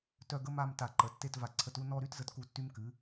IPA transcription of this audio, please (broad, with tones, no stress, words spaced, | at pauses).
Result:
tœ˥˧ɡə˥ma˥˧m ta˧˩ǃə˩˧ tːe˥˧t va˧˩ǀʰə˧tu˥˧ nɔ˥˧ɾy˥t zə˧tku˧˩tːy˧mkɨ˩˧